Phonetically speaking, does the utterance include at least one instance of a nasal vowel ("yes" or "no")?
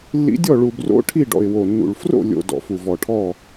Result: no